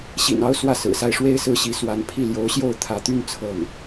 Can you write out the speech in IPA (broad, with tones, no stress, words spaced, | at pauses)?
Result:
ɕḭ˨˩nɑ˧˥ʊ̯ swä˥˩sɹ̩˨˩sa˥˩ɪ̯ ʂwe˥ɪ̯sɹ̩˥ɕi˧˥ swa˧˥n pʰi˥˩ ljo˧˥ʊ̯ɕjo˥˩ʊ̯ t̪ʰä˧˥t̪y˥n t͡sʰɤ˥˩ŋ